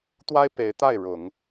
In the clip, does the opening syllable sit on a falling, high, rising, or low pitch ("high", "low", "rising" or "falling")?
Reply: high